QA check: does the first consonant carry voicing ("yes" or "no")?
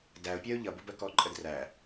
yes